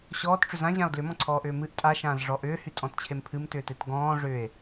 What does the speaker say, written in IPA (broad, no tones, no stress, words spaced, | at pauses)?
ɕɔːtʈ͡ʂʏ zãʑão̯ dlʏmɔ̃ǀʰɔːʔʏː mɨʔ tʼaʃãːzʐɔ ʔʏːhytʼɔ̃tt͡ɕʰem pʰɨmtʏːtet ɡɔ̃ː ʐʏːe̯